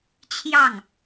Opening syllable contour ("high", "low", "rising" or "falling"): falling